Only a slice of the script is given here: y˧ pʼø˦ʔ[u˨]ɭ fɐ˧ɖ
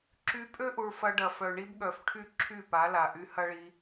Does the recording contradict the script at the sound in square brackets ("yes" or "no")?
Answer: no